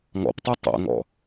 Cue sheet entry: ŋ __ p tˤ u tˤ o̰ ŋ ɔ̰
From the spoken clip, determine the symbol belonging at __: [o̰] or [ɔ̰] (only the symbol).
ɔ̰